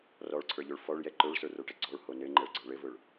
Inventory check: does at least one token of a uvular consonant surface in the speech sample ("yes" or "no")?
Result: no